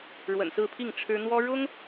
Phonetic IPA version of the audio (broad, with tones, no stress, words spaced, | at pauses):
ɻwə̰˨˩nsɹ̩˥˧pʰi˥˩ŋ ʈ͡ʂʰɻ̩˥ n̪wɔ˥ɻʊ˥ŋ